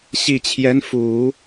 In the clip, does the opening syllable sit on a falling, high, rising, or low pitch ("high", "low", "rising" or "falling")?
low